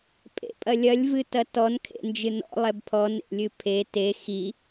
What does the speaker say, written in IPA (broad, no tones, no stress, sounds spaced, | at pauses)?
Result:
pʼ ḛ pʼ ɐ lʲ ɐ lʲ v ɨ t ɐ t ɔ n kʰ ḛ n d͡ʒ ɨ n ɔ̰ lˠ ɛ b pʰ ɔ n ḛ lʲ ɨ pʰ e t e x i